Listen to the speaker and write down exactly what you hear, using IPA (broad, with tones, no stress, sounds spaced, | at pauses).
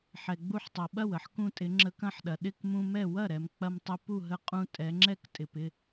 ħ ɛ˩ ɡ͡b u˧ ħ tˤ ʌ˩ ɓ ɐ˥˩ w ə˩˧ ħ k ũ˧ tʼ ɪ˩˧ ŋ͡ǁ ə˧ k ɐ̃˥˩ ħ ɗ ɐ˩ ɗ ɪ˥˩ k m ũ˧ m ɛ˥˩ w ɐ˥˩ ɾ ɛ˩ m k͡p ɐ˧ m tˤ ɪ˧ p u˥˩ ɦ ə˧ qʼ ũ˧ tʼ ɛ˩˧ ŋ͡ǁ ɛ˥˩ k tʼ ɪ˩ p ɪ˥˩